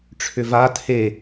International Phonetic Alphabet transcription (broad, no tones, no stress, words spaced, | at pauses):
ʈ͡ʂʰʏva tʰe